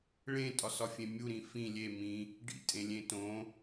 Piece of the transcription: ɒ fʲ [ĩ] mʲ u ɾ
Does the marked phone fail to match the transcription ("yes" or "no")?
yes